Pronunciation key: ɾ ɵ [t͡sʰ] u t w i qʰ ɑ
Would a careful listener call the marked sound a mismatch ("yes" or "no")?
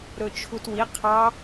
yes